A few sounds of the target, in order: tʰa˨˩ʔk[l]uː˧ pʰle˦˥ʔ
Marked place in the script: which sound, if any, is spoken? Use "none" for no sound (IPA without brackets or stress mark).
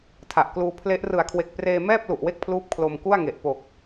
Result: l